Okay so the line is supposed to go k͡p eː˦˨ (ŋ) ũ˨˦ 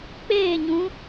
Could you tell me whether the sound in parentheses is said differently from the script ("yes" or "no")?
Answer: yes